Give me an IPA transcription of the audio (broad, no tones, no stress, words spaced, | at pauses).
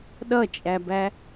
ɗʌt͡ʃʼæbæ